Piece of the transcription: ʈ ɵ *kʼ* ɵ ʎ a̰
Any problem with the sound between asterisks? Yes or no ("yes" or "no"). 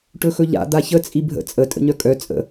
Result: yes